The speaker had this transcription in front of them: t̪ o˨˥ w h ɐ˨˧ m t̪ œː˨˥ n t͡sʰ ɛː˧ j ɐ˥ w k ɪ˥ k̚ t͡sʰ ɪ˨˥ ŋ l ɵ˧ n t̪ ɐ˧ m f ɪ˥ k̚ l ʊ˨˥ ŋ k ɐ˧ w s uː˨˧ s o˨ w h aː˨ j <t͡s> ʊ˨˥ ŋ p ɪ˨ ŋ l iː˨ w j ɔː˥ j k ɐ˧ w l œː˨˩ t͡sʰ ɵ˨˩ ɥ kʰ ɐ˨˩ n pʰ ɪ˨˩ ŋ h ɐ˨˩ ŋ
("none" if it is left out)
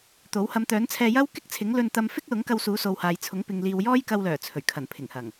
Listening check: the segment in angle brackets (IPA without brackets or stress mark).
t͡sʰ